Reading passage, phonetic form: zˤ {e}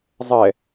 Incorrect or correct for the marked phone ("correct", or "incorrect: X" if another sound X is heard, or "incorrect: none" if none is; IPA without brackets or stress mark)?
incorrect: ɛ